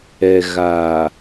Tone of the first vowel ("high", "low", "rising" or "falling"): low